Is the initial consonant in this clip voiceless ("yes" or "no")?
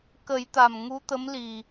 yes